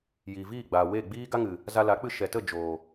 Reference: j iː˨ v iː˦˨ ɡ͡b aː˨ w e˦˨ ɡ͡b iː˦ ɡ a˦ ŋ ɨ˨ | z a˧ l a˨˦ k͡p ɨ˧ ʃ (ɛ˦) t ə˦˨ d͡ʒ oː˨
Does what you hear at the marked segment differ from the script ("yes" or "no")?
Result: yes